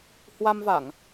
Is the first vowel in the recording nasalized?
no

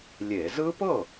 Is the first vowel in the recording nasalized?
no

